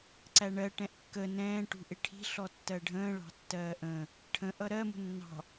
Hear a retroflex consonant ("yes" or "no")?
yes